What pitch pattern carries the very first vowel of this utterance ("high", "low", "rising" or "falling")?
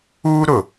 high